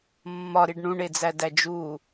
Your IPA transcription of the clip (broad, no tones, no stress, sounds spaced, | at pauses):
mː ɒ ɾ i ɖ ɳ ũ ɳ e d͡z æ d æ d͡ʒ u